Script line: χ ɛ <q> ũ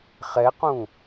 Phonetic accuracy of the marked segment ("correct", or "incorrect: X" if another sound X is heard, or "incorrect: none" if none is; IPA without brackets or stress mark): correct